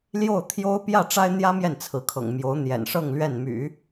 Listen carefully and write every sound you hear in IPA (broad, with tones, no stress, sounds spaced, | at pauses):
l j o˥˩ ʊ̯ t̪ʰ j o˥ ʊ̯ p j ä˥˩ ʈ͡ʂ a˥ ɪ̯ n̪ j ä˥ m j ɛ˥˩ n t͡sʰ ɹ̩˧˥ kʰ ɤ̰˨˩ ŋ m j o˧˥ ʊ̯ n̪ j ɛ̰˨˩ n ʂ ɤ˥˧ ŋ l ɥ ɛ˥˩ n m y̰˨˩˦